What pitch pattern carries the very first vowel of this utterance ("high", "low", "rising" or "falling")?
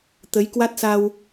rising